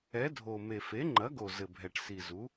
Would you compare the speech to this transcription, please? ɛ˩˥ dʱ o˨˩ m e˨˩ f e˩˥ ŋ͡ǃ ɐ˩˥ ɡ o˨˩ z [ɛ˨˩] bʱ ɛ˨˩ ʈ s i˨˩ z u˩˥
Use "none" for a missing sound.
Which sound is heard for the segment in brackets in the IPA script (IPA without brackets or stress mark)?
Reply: ɘ˨˩